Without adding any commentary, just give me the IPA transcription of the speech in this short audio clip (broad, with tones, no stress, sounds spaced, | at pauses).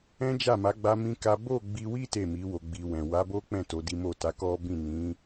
ɛ̃˦ d͡ʒ a˦˨ m a˨˦ ɡ͡b a˦ m ĩ˦ k a˦ b o˦˨ ɡ͡b i˧ w i˦ t e˦˨ m i˨˦ w o˧ ɡ͡b i˧ w ɛ̃˨ w a˨˦ b o˦ k͡p ɛ̃˦˨ t o˨˦ d i˦ m o˦˨ t a˨˦ k ɔ˦ b ĩ˦˨ n ĩ˨˦